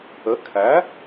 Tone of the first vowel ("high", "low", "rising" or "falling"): rising